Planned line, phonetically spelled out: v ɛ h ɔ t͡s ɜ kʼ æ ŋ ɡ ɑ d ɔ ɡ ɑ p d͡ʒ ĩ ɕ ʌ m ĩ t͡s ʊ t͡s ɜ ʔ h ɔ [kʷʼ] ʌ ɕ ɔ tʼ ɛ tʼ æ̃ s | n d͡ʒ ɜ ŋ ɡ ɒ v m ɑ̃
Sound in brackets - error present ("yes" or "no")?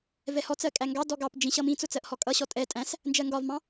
yes